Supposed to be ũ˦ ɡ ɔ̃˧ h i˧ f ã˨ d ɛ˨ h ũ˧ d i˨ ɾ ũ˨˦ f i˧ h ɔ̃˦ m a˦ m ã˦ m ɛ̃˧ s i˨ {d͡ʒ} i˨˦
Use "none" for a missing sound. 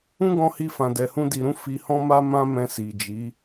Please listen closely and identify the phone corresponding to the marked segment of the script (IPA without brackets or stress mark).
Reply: d͡ʒ